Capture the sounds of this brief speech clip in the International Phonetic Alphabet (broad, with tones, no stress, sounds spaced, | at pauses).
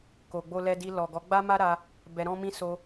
k o˨ ɡ͡b o˧ l ɛ˧ d i˧ l ɔ˨ ɡ ɔ˨˦ ɡ͡b a˦ m a˦ ɾ a˧ | b ɛ˧ ɾ ɔ̃˦ m ĩ˦ s o˧